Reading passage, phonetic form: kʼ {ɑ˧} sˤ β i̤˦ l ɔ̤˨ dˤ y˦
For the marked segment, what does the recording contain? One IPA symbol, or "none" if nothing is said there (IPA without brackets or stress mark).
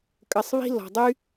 ə˧